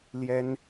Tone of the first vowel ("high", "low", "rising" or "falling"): high